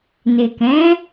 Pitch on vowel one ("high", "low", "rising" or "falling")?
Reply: low